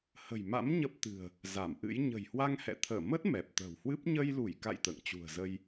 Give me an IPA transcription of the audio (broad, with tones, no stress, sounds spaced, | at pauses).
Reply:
h ə̤˨˩ j m a̰˧˥ m ɲ ə˦˥ p̚ t̪ ɨ̤˨˩ ə̯ | z a˧˩ m ʔ ɨ̰˧˥ j ɲ ə̤˨˩ j h w a˧ ŋ h ɛ̰˧˨ t̪ʰ əː˧˩ m ə˦˥ t̚ m ɛ˨˩ p̚ t̪ ə̤ː˨˩ w h w ɨ˦˥ p̚ ɲ ə˧ j l u˧˩ j k a̰˧˨ j t̪ ə̰ː˧˨ ŋ t͡ɕ ṳ˨˩ ə̯ z ə˧ j